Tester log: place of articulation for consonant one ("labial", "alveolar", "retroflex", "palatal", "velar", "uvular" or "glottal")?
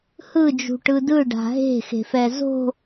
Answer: glottal